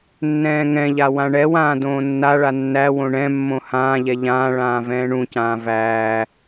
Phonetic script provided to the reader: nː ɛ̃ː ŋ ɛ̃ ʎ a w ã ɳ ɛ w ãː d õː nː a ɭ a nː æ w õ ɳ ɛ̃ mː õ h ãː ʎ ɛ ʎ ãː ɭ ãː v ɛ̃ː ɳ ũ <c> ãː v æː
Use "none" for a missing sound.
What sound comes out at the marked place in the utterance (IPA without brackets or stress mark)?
c